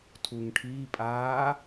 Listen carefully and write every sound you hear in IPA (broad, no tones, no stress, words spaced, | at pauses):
tʰuŋʈʰiːpʼaː